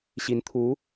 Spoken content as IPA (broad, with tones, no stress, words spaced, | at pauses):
ɕi˧˥nt̪ʰu˧˥